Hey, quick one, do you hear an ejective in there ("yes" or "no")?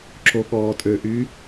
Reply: yes